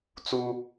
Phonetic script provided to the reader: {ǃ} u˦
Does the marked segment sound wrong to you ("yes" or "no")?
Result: yes